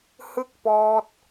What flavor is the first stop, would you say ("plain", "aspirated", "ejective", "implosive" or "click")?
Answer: plain